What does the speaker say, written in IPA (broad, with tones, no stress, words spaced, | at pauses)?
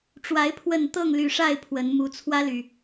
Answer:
ʈ͡ʂwa˨˦ɪ̯ pʰwə˨˩n t̪ɤ˥˨ŋly˨˩ʂa˥˨ɪ̯ pʰwə˨˦n mu˨˩ t͡sʰwä˦ly˨˩